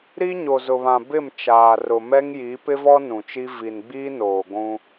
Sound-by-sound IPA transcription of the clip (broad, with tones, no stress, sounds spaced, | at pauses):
ɾ i˦ ɲ o˨ z ʊ˨ β ã˨ b ɪ˦˨ m t͡ʃ aː˨ r ʊ˨ m ɛ˦ ŋ j i˨˦ p ɪ˦ v ɔ˦ n ũ˨ t͡ʃ i˦ v i˨ n ɡ͡b iː˦ n oː˨ ɡʷ ũ˦